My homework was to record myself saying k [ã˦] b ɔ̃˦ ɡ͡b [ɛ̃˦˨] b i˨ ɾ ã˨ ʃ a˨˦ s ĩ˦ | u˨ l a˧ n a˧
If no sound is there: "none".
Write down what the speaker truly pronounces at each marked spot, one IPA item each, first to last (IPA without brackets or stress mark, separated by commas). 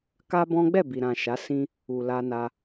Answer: a˦, ɛ˦˨